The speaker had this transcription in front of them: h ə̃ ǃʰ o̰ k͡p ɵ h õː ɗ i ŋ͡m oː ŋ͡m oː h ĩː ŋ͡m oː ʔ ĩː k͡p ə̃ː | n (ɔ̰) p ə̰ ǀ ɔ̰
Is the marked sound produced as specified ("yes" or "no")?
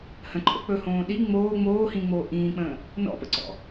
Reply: yes